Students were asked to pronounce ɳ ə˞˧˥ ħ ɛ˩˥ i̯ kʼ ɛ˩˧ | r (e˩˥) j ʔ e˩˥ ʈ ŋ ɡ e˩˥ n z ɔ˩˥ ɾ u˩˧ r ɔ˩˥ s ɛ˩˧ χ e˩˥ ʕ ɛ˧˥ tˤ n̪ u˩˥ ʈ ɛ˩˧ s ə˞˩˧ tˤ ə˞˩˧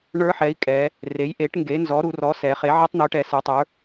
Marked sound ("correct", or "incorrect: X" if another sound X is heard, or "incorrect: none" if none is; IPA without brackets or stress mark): correct